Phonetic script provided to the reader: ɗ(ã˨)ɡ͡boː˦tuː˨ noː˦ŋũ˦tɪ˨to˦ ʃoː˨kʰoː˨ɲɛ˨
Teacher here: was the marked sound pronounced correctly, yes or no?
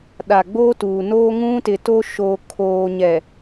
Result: no